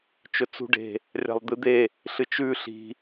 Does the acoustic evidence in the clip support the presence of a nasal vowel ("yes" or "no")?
no